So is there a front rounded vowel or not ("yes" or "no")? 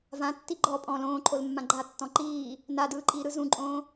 no